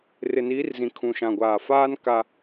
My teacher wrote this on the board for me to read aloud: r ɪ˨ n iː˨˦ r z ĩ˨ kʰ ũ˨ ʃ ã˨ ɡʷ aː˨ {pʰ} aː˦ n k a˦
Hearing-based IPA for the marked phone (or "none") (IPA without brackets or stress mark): f